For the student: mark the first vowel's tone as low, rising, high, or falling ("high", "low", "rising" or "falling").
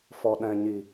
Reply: low